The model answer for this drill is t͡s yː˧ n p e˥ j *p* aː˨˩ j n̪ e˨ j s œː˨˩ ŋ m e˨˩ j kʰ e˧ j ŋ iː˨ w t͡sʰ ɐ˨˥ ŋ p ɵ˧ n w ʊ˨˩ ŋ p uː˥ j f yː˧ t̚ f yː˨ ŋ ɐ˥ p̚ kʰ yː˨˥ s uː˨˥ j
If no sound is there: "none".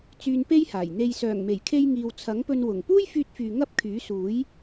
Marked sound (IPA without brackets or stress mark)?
h